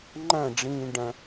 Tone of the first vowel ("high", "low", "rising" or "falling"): falling